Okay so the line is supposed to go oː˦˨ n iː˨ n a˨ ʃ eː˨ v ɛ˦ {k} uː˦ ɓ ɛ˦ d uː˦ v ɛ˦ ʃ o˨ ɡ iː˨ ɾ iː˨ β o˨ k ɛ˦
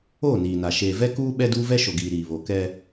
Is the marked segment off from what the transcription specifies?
no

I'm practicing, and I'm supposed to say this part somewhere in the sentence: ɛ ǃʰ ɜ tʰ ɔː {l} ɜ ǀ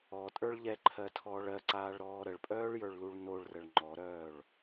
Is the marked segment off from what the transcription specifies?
yes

